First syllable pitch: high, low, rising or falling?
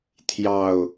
low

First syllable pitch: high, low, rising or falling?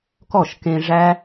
falling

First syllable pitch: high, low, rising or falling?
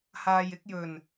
low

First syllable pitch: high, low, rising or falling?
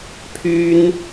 high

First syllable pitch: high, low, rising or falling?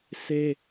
high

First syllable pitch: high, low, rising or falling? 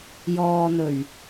low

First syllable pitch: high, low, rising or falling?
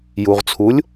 low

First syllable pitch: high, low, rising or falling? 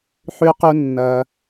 low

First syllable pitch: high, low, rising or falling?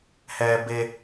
low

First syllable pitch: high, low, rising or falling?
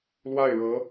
falling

